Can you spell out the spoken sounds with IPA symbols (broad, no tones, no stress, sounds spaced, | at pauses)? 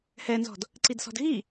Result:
h ɛ n z ɔ̤ d | ǀ i d s ɔ̤ d ɣ i